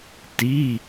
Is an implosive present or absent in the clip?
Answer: absent